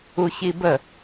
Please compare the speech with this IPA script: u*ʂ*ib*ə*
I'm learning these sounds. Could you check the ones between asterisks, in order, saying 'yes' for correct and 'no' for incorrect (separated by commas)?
no, yes